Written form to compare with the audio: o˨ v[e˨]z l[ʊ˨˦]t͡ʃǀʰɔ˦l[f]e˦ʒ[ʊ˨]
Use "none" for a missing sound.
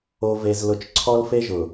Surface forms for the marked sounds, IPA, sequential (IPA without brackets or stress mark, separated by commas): e˨, ʊ˨˦, f, ʊ˨